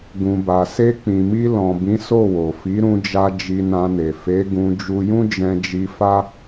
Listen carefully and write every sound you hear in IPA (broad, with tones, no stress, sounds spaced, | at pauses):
ɡ ũ˨ b a˨ s e˧ k͡p ĩ˨ m i˧ l ɔ̃˨ b ĩ˨˦ s o˦˨ w o˨ f i˨˦ ɾ ũ˧ d͡ʒ a˧ d͡ʒ i˧ n ã˧ n e˨ f e˨˦ ɡ ũ˧ d͡ʒ u˧ j ũ˦ d͡ʒ ɛ̃˧ d͡ʒ i˧ f a˦